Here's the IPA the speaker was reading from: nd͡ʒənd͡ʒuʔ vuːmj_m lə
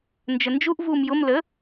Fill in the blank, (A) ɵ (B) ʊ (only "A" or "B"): B